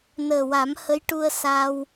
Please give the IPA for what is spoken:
nəː˨˩wa˨˩˦mhə˧˥j ʈu˧ə̯sa˧w

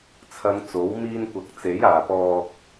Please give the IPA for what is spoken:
t͡sʰɐ˨˧ŋ t͡so˨˥w miː˧nkʷɐ˨k̚ t͡se˨˥jaː˨pɔː˧k̚

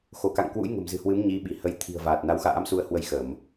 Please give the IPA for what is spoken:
xo˧˩ka̰˧˨ŋkwṵ˧˥j ŋə̤˨˩mzɨ̤˨˩hwɨ˨˦m ɲi˨˦ɓi˧˩hə˨˦j t̪ʰi̤˨˩ə̯vaː˨˩t̚ na˨˦wxa̰ː˧˥msu˧ə̯hwə˧j xə˧˩˨m

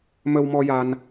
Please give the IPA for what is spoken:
mə˧wmɔ˧ja˧n

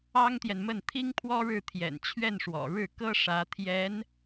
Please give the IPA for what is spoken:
ɑ˥ŋt̪jɛ˨nmə˥˩n t̪ʰi˥ŋpʰwɔ˥ɻɻ̩˥˩ t̪ʰjɛ̰˨˩nt͡ɕʰɥɛ˥˩nʂwɔ̰˨˩ ɻɻ̩˥˩kɤ˥ ʂä˧˥ t̪ʰjɛ˧˥n

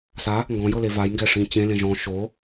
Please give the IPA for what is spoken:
sa | ŋɡɔ̃jɤle vajŋɡɛʂĩ t͡ɕẽ lẽʒɔ̃ ʃo

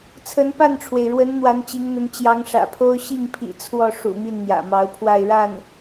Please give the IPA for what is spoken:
t͡sʰə˧˥npa˥˩nʈ͡ʂʰwe˩ɪ̯ɻwə˧˥n n̪wa˧˥nt͡ɕi˧˥ŋn̪ə˧˥n t͡ɕjɑ˧˥ŋʂä̰˨˩pʰo˥ʊ̯ ɕi˥˩ŋpʰḭ˨˩ t͡sʰwɔ˥˩ʂṵ˨˩ mi˥˩nn̪jä̰˨˩mɑ˧˥ʊ̯pʰwa˥˧ɪ̯ ɻa˥˩n

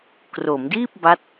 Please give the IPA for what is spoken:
kro˩˦mdiː˥˩p̚ba˦˥t̚

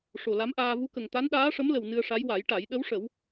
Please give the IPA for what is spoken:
ʂo˨˩la˧˥mʔaː˧ vu˧˥kə˨˩ŋ t̪a˧˥nɗaː˧˥ʂə˧˥mlə˨˩w nɨ˧ə̯ʂa˧˥j wa˨˩˦jʈa˨˩˦j ɗə˧˥wʂə˨˩˦w

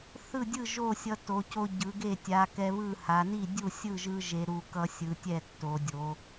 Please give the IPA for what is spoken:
θɯ˥˩dʲɯ˥˩ ʒo˥˩sʲʌ˧ to˩˧co˧ ɟɯ˩˧ɡe˥˩ tʲa˩˧ kɛ˧βɯ˥˩ ha˩˧ni˥˩ dʲu˥˩sʲɯ˥˩ʒɯ˧ ʒe˩˧ɾu˩˧ kʌ˧sʲɯ˩˧ tʲɛ˥˩tːo˩˧dʲo˩˧

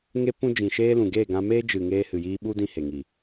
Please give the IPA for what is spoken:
ŋe˧pũ˧ d͡ʒĩ˨ʃeː˧lũ˨ ɡeː˦˨ɡã˧meː˦ d͡ʒɨ˨ ŋeː˧hɨ˨jiː˧ɓu˦ dĩ˧he˨ ŋiː˨

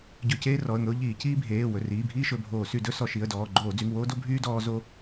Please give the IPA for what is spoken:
ɟɵ˧˩˧ceː˦ rɔ˩˧˩ə̯ŋɵ˦ʊ̯ʎiː˧˩˧ ciː˦bʱeː˩˧˩ wɵ˩˧˩riː˩˧˩bʱiː˦ ʃɵ˩˧˩bʱoː˧˩˧ sy˧˩˧dɵ˦ sɔ˧˩˧ʃi˩˧˩ə̯dɔː˩˧˩ ɡ͡ǃoː˧˩˧d͡zy˩˧˩ŋwoː˦ do˦bʱyː˦ dɔː˦ zo˦

